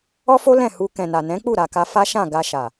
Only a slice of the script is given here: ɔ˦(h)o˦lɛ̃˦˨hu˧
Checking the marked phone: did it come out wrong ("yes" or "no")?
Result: yes